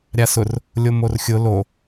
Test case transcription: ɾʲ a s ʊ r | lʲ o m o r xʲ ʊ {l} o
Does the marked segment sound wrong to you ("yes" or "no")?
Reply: no